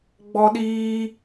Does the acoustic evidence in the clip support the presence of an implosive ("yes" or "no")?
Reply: yes